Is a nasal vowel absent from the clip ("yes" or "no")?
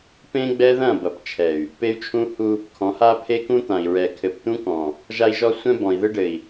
no